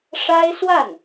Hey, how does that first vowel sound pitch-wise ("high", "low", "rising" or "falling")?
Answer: high